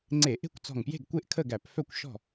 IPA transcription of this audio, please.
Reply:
ŋ͡ǀ e˧˩˧ ʔ e̤˥˨ kʷ t͡s ɔ̤˧˩ ŋ p j e̤˥˨ ɡ kʷ e˥˨ ʔ kʰ ə˥˨ ɡ æ˧˩˧ p f œ˥˨ kʷ ʃ ɔ̤˥˨

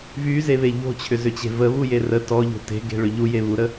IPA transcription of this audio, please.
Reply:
v y z e β e ʎ o̤ t͡ɕʰ ʏ z ʏ t͡ɕ e̤ v ə β u j e r ə t ɔ ʎ o̤ t e̤ ɡ e̤ ɭ ʏ ʎ u j e β u ɾ ə

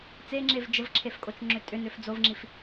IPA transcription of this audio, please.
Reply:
t͡s e ŋ͡ǁ e v d͡ʒ ə v ǁʰ e f kʼ o t͡ʃ ŋ͡ǁ ʏ tʼ ʏ n ʏ f d͡z o v ŋ͡ǁ i f

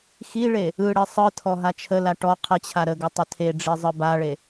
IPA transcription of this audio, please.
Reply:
x i ɭ e | ɯ ɽ e sˤ ɯ tʰ ɔ ɦ a t͡ʃʰ ə l a ʈ ɔ qʰ ə t͡ɕʰ a ɾ ə ɡ ə tˤ ə tʰ e ɖ͡ʐ i zˤ ɯ b a ɭ e

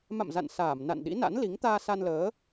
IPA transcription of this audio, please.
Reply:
m a̰˧˨ m z a̰˧˨ n s aː˧˩ m n a̰˧˨ n ɗ ḭ˧˥ n a̰˧˥ n l i˨˦ ŋ t̪ aː˧ s a˧ n l əː˨˦

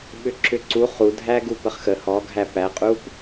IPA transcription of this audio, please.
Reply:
ɓ ʏ ǁ ʏ ǀ u χ u dʱ æ ɡ u p ə χ x ə h ɔ ɡʱ æ p æ qʼ u p

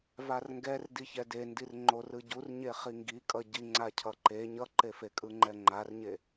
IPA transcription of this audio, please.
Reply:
v a r ŋ ɡ ɛ r d i ç ɛ d e n d i r ŋ͡ǃ o r ɯ ɟ u r ɲ e χ i ŋ ɡ i kʼ ʌ ɟ i ŋ͡ǀ a cʰ ʌ ǃ e ɲ ʌ ǃ e f e kʼ ɯ ŋ͡ǃ ɛ ŋ͡ǃ a r ɲ e

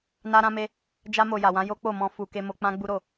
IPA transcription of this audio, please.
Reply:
n a˧ ɾ ã˧ m e˧ | d͡ʒ a˧ m o˨ j a˨ w ã˨˦ j o˦ k͡p o˦˨ m ɔ̃˧ f u˨ k e˧ m o˧ k͡p ã˦ ɡ͡b u˦ ɾ o˦˨

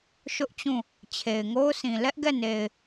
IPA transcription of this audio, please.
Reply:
ʃ ʊ˦ ʔ t͡ɕ ũ˦˨ | t͡ɕʰ e˨ ɪ̯ ŋ o˦ ʊ̯ s ĩ˨ l ɛ˦ ʔ ɡ ɛ˦˨ n e˨ ɪ̯

